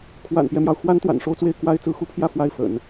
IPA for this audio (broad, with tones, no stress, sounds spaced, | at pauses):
kʰ w a̰˨˩ n p j ɛ˦ m j ɑ˩ ʊ̯ x w a˥ n t̪ w a̰˨˩ n ʂ o˥˧ ʊ̯ t͡s w e˥˩ ɪ̯ k w a˥ ɪ̯ t͡s ɹ̩˧˥ x u˥ pʰ j ä˥˧ f w a˥˩ ɪ̯ f ə̰˨˩˦ n